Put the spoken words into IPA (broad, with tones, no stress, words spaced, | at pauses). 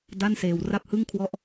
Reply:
da˥˩nseː˧w ra˥˩p̚hɯ˥˩ŋkʰwɔ˦˥ʔ